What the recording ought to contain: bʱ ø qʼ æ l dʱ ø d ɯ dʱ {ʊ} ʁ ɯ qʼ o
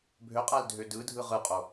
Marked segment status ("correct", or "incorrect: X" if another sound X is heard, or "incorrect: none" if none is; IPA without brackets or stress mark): incorrect: ɯ